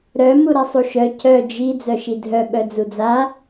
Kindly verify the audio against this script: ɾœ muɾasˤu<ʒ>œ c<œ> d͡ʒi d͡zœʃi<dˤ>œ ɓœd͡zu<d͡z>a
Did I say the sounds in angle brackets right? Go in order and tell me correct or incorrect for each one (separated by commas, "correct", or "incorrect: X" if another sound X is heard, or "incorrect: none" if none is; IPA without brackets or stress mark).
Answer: incorrect: ʃ, correct, incorrect: dʱ, correct